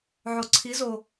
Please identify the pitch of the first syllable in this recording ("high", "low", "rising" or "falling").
low